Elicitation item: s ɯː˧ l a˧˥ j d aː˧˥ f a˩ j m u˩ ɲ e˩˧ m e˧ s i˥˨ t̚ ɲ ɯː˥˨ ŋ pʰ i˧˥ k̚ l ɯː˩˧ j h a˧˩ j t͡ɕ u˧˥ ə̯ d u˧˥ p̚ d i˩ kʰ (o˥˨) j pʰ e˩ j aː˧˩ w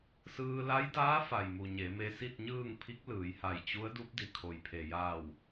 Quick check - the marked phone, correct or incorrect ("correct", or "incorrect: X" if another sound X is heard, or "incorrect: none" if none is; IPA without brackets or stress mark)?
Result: incorrect: o˩